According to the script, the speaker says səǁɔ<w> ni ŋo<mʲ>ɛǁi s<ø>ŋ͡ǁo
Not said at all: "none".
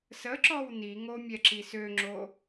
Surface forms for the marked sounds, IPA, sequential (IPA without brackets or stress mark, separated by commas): w, mʲ, ø